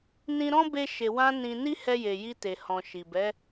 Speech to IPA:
nĩ˧ɾɔ̃˦ be˧ ʃe˨ wã˧ nĩ˧ ni˦hɛ˧je˨ ji˧te˨hɔ̃˨ ʃi˨ bɛ˨˦

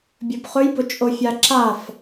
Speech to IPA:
bʲɵbχɵjbʊt͡ʃʼo fʲaǁaf

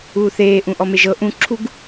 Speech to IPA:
uːθeː ʔũʔɔmeʒɤ ʔũǁʰuɡ

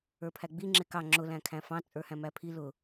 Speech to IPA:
ə˞pʰæɡ͡bi ŋ͡ǁɪkɑ ŋ͡ǁʊ læ̃kʰæ̃fɑ̃ t͡sʼə˞hæ̃mæpʰi lʊ

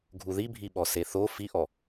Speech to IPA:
ɡʱuðibʱiɓɔ seθo fiʔɔ

